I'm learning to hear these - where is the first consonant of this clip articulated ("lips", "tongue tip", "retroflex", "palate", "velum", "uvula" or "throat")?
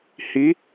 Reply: throat